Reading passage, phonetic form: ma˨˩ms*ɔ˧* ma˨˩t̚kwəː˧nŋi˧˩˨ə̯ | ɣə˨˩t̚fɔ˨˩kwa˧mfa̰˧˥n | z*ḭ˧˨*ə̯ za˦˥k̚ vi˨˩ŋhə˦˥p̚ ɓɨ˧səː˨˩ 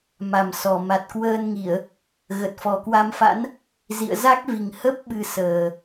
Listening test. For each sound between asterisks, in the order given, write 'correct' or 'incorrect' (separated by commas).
incorrect, correct